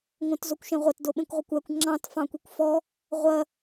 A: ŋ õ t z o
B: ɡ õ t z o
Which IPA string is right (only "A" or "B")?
A